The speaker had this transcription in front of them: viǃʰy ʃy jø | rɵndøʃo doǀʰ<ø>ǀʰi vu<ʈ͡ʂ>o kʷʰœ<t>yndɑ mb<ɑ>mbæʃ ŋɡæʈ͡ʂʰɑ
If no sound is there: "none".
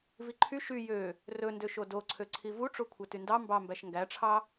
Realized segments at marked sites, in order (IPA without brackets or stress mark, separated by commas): ø, ʈ͡ʂ, t, ɑ